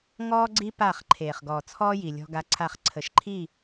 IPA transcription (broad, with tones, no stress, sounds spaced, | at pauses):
ŋ ɔː˦ ɡ͡ǀ i˦ p aː˦˨ χ ǃʰ eː˨ χ ɡ ɔː˨ t͡sʰ ɔː˦ j i˨ lʲ ɔ̤˦ ɡ a˦ ǀʰ a˦˨ χ ǀʰ ə˨ ʃ ǃʰ i˦˨